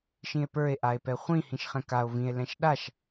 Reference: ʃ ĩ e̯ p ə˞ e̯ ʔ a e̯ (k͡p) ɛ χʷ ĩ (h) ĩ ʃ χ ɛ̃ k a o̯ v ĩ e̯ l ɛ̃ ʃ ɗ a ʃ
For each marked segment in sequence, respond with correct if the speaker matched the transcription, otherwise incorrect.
incorrect: p, correct

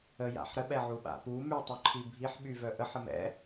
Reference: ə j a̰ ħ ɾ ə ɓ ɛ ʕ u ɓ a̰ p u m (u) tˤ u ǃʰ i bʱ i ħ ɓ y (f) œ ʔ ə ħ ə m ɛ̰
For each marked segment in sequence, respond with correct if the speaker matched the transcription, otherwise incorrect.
incorrect: y, incorrect: v

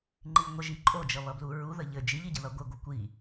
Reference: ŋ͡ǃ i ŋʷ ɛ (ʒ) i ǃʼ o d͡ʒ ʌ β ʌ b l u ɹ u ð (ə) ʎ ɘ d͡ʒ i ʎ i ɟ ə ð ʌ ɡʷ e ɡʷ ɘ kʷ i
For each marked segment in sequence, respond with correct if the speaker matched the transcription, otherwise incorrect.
correct, correct

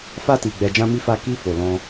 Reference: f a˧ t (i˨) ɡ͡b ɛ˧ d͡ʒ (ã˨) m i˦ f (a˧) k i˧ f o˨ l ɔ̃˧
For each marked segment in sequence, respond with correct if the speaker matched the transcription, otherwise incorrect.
correct, incorrect: ã˦, incorrect: a˦

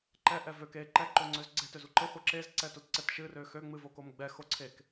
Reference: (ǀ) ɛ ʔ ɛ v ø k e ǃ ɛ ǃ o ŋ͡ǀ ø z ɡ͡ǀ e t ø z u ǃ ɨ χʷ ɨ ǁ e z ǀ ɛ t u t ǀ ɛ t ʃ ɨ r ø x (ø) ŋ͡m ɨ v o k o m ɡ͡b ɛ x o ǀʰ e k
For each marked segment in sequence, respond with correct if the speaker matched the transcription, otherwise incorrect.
incorrect: ǃ, correct

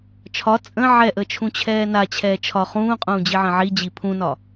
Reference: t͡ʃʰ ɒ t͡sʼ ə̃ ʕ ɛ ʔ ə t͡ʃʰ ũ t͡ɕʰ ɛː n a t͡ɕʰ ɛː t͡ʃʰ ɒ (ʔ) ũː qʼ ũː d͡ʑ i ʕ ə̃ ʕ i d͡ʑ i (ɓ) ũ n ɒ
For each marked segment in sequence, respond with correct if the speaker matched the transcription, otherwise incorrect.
incorrect: χ, incorrect: pʰ

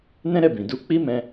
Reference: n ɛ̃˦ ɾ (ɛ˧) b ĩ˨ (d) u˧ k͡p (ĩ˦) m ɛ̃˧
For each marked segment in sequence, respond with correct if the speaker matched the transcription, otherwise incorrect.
incorrect: ɛ˦˨, correct, incorrect: i˦

